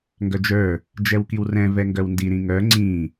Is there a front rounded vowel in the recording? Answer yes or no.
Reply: yes